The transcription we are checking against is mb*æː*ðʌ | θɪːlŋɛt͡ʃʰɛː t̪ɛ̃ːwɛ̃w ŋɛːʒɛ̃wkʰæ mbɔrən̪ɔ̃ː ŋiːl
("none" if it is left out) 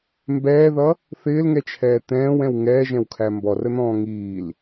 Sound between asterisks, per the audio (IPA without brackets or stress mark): ɛː